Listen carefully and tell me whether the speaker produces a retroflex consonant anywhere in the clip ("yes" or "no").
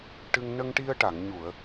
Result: yes